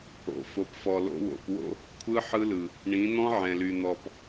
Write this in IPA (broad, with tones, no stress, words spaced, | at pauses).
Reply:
o̰˨fo˨pfɔ˨ lo̰˧wo̰˨pwo̰˦ | kʷʰɯ˦ ħɯ˦lɯ˨ | ɳĩ˨˦n̪ɔ̃˦ʕɛ̃˨ly˨ n̪ɔ˨p